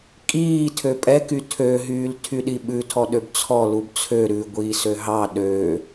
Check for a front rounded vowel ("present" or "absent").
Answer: present